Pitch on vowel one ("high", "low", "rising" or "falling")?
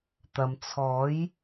low